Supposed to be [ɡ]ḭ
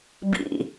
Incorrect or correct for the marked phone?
incorrect: b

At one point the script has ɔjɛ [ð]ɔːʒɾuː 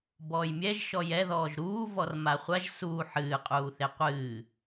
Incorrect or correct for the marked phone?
correct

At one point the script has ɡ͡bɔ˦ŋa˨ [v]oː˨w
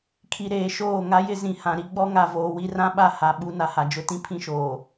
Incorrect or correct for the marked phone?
correct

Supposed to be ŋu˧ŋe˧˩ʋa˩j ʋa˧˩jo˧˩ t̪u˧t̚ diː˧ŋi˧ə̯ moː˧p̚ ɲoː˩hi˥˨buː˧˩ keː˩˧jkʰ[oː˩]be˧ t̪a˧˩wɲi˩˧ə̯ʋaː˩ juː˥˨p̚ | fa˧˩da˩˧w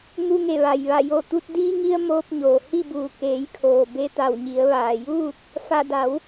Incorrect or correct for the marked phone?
correct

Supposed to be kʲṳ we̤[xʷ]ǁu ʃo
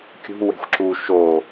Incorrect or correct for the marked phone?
correct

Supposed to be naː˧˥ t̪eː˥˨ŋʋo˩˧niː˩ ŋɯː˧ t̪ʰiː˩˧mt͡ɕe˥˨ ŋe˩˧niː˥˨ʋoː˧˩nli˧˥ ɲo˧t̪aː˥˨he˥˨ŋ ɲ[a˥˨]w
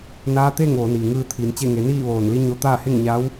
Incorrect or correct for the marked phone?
incorrect: a˧˥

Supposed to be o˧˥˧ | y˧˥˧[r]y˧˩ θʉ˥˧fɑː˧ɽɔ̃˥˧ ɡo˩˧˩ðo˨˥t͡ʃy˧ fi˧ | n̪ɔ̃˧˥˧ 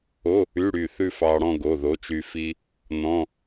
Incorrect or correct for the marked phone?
incorrect: ɽ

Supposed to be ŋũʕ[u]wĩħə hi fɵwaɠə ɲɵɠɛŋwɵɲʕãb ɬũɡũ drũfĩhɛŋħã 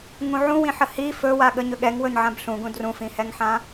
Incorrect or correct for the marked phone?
incorrect: ũ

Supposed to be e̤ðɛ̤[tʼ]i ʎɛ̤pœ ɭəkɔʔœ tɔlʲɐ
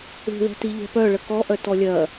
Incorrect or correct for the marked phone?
incorrect: t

